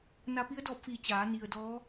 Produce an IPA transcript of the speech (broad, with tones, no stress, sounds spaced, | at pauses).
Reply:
n a˧ p i˧˥ ə̯ d ɔː˧ p̚ f iː˧˩ t͡ɕ aː˩˧ n i˩ ə̯ d ɔː˧˥